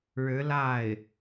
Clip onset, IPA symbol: ɻ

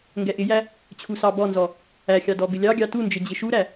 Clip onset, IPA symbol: ŋ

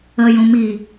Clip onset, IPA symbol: ə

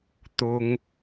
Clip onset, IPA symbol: t̪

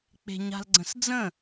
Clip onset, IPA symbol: k͡p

